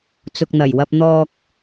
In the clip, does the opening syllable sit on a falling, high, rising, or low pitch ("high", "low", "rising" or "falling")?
low